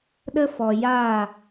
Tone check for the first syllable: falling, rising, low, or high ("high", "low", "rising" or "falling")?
high